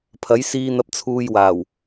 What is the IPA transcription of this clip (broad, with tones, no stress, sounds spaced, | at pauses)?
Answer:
pʰ ɐ˨˥ j s iː˧ n̪ ɐ˧ p̚ t͡sʰ uː˧ j w aː˨˩ w